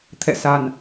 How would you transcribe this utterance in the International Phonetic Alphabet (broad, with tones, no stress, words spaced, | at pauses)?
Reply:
t̪ʰɛ̰˧˨sa˨˩n